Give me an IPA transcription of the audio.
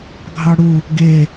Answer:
ɡʱɑɽu | ɡe

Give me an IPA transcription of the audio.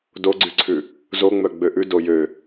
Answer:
doɡ͡ǀyǀʰʉ | zoŋ͡mœ ɡ͡bøʔʉ dojø

